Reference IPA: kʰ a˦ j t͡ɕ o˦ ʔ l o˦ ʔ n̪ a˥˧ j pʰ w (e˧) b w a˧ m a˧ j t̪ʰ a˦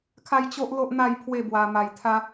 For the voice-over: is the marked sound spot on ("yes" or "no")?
no